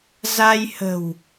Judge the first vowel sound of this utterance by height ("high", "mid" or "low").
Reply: low